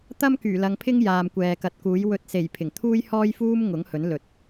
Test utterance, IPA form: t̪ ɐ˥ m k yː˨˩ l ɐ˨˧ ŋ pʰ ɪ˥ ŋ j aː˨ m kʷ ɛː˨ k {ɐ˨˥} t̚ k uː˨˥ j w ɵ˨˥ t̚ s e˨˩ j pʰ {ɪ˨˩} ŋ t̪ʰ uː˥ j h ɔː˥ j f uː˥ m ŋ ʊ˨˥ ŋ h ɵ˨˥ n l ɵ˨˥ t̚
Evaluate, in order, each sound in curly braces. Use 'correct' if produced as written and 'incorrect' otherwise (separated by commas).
correct, correct